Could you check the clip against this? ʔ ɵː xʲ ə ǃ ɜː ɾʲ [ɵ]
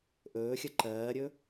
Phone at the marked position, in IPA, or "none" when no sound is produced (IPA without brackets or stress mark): ɵ